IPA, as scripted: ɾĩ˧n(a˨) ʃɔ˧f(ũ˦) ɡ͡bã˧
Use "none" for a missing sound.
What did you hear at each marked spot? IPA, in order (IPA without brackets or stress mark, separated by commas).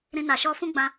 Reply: a˨, ũ˦